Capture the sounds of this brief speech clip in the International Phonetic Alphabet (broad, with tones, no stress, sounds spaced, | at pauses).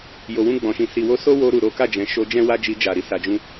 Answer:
j o˨ w ũ˧ ɡ͡b ɔ̃˨ ʃ ĩ˨ s i˨ w o˧ s o˦ w o˧ ɾ u˨ ɾ o˨˦ k a˦˨ d͡ʒ ɛ̃˨ ʃ o˧ d͡ʒ ɛ̃˦ w a˦ d͡ʒ i˧ d͡ʒ a˨ ɾ i˧ s a˨ d͡ʒ ũ˧